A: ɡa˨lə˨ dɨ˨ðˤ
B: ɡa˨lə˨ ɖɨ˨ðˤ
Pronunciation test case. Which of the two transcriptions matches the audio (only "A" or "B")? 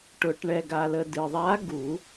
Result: A